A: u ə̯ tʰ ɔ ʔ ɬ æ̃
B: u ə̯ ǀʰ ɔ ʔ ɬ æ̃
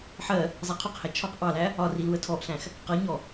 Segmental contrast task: A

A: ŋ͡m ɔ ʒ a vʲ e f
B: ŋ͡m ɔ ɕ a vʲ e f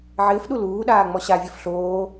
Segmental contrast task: B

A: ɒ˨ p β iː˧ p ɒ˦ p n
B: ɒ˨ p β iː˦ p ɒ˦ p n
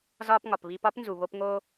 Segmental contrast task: B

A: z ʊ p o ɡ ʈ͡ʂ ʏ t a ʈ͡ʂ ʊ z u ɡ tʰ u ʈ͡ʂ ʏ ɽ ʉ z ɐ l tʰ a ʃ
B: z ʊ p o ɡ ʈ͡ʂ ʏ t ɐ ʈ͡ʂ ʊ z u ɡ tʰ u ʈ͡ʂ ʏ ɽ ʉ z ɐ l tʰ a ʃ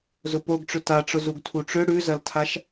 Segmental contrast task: A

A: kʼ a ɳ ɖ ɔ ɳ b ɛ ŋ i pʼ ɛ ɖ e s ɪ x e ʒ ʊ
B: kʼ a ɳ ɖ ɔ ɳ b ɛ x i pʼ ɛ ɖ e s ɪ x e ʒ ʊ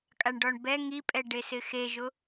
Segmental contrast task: A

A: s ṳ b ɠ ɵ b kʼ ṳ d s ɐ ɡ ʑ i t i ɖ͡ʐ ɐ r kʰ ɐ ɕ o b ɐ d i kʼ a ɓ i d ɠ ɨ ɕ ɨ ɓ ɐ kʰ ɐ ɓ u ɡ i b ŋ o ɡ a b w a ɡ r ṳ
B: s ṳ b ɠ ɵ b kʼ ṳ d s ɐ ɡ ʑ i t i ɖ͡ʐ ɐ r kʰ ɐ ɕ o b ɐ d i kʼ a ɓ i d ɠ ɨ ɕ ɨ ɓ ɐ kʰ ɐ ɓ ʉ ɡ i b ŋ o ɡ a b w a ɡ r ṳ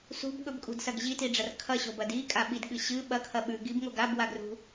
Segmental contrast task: B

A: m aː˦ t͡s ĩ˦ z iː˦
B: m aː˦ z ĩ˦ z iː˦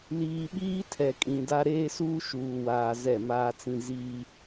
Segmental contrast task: A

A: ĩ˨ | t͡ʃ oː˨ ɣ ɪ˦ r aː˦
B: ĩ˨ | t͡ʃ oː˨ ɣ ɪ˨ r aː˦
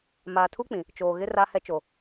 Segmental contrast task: A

